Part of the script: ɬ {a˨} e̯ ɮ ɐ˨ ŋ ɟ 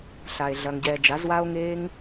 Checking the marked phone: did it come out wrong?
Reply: no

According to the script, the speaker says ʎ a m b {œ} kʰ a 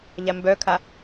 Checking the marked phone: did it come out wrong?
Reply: no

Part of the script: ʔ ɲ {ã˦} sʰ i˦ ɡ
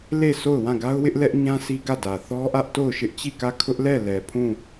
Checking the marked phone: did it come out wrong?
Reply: no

